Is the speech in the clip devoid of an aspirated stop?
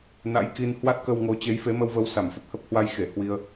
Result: yes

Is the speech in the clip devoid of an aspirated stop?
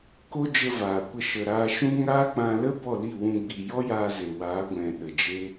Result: yes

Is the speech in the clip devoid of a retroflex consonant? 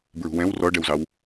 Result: no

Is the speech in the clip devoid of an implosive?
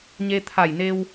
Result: yes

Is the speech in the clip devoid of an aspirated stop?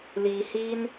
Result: yes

